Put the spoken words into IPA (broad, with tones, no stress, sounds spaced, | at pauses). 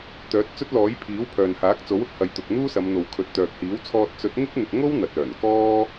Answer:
t̪ œː˨˥ t̚ t͡s ɵ˥ t̚ l ɔː˨˥ j pʰ iː˨˥ w pʰ œː˨ n h aː˨˥ k̚ t͡s o˨˥ w ʊ˧ k̚ h ɐ˨ j t̪ ʊ˨ k̚ n̪ uː˥ s ɐ˨˧ m n̪ o˨ w kʰ ɵ˨ t̚ t̪ œː˨ k̚ h iː˨˥ w t͡sʰ ɔː˧ t̚ t͡s ɵ˨˥ t̚ ŋ ɪ˥ k̚ n̪ ɪ˨ k̚ ŋ o˥ w n̪ ɐ˨ t̚ œː˨˩ n k ɔː˥